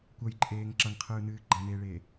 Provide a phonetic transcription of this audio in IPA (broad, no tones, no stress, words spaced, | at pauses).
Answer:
kʷʌjǃʼeːŋ ǁʌŋqʰɯːnɨː ɡ͡ǃʌneːɭeː